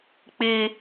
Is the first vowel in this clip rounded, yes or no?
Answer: no